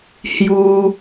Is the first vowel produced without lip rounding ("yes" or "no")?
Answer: no